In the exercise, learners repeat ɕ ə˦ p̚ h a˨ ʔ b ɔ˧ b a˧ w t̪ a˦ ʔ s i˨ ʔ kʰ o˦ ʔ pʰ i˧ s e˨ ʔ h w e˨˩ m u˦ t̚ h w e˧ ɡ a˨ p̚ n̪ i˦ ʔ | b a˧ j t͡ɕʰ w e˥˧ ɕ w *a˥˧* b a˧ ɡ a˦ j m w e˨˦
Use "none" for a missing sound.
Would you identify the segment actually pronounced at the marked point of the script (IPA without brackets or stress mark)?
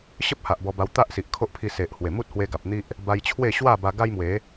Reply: a˥˧